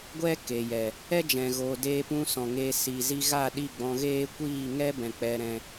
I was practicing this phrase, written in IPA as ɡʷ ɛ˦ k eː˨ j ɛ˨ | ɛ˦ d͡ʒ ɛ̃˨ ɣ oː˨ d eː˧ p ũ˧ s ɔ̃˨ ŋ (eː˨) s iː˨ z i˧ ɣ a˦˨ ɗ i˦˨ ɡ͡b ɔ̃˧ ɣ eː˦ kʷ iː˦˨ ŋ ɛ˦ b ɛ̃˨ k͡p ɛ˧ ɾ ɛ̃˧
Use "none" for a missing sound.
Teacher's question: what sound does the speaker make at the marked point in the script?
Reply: eː˧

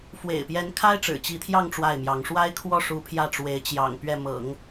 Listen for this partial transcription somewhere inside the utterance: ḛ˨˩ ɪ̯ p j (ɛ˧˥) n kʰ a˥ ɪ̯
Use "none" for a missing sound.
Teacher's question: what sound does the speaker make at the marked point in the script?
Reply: ɛ˧˥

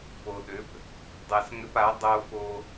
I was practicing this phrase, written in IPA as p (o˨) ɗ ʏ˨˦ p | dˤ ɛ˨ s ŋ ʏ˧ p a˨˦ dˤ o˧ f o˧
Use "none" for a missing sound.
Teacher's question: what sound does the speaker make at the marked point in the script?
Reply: o˨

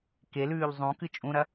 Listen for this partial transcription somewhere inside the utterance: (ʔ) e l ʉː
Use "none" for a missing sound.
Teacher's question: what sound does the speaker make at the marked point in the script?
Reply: k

